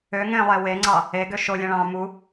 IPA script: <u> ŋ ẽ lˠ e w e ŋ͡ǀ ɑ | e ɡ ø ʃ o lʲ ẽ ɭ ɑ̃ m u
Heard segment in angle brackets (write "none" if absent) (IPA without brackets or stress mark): ø